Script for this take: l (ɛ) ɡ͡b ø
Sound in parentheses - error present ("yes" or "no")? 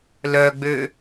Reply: yes